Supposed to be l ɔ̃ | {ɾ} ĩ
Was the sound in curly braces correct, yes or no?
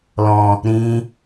yes